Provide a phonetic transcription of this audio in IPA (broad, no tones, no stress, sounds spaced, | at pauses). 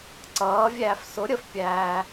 ǀ ʌː vʲ æː f s ʊ ɾʲ ə f pʲ æː